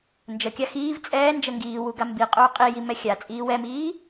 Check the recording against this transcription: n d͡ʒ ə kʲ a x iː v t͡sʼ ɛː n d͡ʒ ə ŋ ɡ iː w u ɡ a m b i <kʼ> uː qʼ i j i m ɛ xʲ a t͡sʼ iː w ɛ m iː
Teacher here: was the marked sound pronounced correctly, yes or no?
no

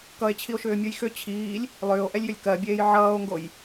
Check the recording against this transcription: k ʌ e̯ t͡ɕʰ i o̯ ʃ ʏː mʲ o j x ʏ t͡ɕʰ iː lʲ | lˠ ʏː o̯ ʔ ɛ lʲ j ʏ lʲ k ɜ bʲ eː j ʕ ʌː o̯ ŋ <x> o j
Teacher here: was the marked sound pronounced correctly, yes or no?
no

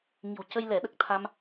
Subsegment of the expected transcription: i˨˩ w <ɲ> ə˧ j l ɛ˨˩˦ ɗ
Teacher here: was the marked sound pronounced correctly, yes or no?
no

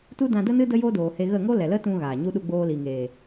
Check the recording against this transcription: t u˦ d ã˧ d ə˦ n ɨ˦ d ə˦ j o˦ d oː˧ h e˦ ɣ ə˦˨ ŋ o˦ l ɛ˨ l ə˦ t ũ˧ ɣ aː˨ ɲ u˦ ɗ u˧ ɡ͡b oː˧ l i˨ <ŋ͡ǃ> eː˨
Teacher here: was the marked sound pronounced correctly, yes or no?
no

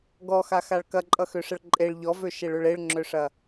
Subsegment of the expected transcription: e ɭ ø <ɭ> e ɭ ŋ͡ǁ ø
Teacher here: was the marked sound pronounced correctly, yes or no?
yes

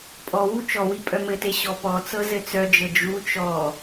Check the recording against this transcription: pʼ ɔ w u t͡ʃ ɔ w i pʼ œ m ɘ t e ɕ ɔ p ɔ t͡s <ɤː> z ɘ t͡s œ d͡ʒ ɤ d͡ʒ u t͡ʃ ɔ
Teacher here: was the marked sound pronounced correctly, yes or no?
no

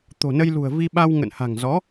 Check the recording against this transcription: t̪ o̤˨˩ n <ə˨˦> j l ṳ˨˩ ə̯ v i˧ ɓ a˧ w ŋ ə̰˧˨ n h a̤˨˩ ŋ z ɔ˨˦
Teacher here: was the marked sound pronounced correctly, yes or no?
no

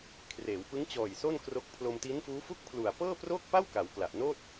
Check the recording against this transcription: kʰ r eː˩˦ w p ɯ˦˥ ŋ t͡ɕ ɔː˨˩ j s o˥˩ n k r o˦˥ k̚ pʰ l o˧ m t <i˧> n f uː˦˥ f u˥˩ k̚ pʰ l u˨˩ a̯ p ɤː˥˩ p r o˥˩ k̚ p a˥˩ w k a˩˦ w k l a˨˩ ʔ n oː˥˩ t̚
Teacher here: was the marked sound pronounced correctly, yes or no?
no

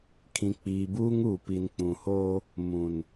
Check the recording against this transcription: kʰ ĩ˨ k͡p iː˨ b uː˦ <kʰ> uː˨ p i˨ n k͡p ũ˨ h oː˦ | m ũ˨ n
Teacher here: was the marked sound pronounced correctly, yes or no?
no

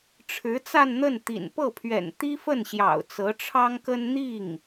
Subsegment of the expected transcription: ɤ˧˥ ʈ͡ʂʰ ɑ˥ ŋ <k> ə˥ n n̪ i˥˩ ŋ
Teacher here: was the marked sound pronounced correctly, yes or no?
yes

